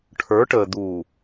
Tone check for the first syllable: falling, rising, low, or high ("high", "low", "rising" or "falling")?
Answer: rising